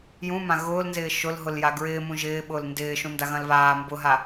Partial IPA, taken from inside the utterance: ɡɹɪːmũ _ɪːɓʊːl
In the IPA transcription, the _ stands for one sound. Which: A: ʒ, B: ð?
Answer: A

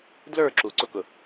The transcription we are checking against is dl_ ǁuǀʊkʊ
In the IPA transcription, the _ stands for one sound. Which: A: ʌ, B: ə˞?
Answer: B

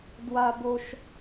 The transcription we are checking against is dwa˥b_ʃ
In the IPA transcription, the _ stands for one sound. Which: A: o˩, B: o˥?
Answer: B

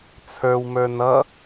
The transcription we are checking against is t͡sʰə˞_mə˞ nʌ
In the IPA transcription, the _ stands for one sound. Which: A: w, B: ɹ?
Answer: A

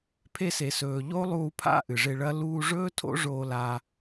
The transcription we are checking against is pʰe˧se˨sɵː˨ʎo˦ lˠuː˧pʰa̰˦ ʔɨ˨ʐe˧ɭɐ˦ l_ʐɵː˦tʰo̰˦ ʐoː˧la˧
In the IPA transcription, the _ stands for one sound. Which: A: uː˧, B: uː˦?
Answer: A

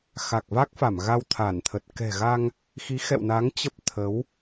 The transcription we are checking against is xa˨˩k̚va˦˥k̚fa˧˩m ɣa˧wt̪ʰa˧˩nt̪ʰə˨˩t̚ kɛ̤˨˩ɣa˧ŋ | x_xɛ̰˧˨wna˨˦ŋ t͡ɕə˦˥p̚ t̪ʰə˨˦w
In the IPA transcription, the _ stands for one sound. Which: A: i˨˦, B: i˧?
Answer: A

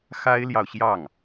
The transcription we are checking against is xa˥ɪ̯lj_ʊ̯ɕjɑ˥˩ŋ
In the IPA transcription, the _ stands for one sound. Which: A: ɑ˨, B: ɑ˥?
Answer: A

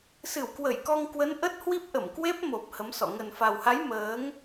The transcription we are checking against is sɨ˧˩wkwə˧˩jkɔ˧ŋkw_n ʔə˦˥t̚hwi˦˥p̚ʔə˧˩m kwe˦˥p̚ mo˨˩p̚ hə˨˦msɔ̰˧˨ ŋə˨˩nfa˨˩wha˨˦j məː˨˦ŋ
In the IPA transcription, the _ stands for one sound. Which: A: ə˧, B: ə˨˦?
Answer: B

